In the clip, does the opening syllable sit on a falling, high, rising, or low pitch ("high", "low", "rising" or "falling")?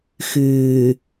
low